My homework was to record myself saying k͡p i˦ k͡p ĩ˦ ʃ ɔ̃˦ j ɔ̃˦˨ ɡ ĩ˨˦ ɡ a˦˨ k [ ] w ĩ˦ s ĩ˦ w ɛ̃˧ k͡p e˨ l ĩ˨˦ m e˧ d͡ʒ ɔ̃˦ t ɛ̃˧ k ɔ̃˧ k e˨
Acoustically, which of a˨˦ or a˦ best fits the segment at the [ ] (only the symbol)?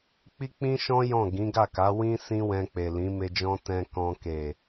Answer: a˨˦